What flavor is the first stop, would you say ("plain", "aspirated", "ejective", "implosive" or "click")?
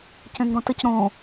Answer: plain